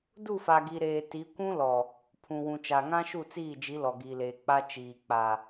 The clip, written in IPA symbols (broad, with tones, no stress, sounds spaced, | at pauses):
d u˦˨ f a˨ ɡ i˨ ɾ eː˨ t i˨˦ kʷ ũ˦ l ɔ˨ | pʰ ũ˨ w ũ˨ t͡ʃ a˨ ŋ ã˦ ʃ u˦˨ t͡s iː˦˨ d͡ʒ i˨˦ l ɔ˨ ɡ iː˨ l eː˨ k͡p a˦ t͡ʃ iː˨ k͡p a˨